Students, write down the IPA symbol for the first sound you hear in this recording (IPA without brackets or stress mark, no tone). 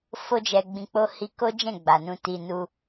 f